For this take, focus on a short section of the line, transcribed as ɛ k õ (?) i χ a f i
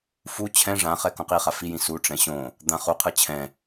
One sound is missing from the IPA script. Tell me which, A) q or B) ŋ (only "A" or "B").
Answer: A